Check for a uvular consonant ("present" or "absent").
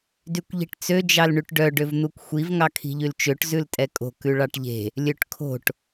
absent